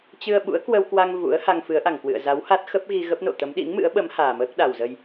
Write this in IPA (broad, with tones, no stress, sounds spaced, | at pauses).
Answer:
t͡ɕ ɨ˧ ə̯ ɓ ṵ˧˥ ə̯ k w ə˧ w k w a˧ ŋ v ṵ˧˥ ə̯ h a˧ ŋ f ɨ˨˦ ə̯ ʔ a˧˩ ŋ k w ɨ̰˧˨ ə̯ z a˨˦ w h a˦˥ t̚ x ə˦˥ p̚ ɣ i˧ ɣ ə˦˥ p̚ n o̰˧˨ t̪ ə˨˦ m ɗ ḭ˧˥ ŋ m ɨ̰˧˥ ə̯ ɓ ə˨˦ m h aː˨˩ m əː˦˥ k̚ ɗ a˨˩ w z ə˧ j